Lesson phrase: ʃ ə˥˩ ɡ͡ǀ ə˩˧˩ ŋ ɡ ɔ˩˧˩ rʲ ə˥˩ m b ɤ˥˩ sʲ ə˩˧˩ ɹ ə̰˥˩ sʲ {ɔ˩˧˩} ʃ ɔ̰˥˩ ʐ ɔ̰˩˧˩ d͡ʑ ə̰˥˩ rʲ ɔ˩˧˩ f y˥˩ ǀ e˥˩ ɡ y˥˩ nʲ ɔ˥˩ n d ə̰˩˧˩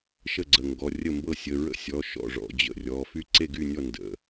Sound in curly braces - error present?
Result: no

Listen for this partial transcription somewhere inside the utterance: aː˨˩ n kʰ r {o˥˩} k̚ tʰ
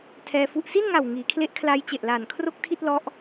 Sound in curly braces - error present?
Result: no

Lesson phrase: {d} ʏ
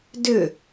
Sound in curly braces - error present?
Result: no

